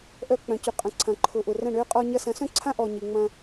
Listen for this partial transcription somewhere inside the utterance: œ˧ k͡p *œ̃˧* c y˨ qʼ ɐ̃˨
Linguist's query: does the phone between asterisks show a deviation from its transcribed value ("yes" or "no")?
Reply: yes